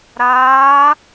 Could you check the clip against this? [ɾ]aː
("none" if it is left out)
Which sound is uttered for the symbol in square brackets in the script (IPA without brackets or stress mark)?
ɾ